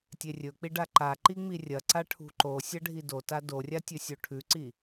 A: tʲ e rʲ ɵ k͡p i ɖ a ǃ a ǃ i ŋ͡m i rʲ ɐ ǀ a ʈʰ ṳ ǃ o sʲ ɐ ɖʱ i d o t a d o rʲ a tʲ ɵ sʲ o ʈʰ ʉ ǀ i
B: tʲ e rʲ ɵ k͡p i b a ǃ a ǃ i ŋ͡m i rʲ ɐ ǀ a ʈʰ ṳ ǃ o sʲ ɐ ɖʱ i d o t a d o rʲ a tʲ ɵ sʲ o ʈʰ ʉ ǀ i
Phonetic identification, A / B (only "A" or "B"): A